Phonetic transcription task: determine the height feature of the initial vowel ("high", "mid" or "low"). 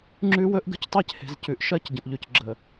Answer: high